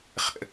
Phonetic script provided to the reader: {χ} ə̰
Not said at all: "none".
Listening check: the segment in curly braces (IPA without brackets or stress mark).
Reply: χ